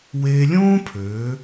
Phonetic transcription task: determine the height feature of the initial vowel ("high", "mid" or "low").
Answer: mid